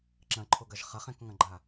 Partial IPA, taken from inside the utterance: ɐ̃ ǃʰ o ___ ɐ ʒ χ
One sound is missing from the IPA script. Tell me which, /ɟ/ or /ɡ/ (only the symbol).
ɡ